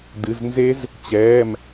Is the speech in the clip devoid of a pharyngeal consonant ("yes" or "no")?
yes